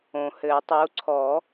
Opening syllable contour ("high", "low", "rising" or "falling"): low